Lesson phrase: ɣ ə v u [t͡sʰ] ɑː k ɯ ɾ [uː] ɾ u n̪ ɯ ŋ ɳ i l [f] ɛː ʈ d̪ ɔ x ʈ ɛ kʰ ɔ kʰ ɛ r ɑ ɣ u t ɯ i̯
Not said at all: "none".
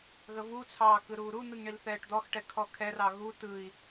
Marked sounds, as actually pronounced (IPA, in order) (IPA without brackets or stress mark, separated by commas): t͡sʰ, uː, θ